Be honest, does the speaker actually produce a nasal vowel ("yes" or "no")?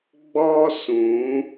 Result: yes